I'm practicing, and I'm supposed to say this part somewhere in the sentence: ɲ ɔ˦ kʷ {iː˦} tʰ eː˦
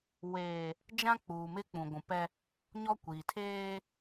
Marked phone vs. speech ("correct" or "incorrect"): incorrect